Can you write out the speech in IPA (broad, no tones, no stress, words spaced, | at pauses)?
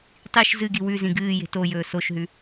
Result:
tˤiʃ zɨɡi wʉzĩ ɡɨː je̤tojɵː soʃɦʉ